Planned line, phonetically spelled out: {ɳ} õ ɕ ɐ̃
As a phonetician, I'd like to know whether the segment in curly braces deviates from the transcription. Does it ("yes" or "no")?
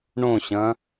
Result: no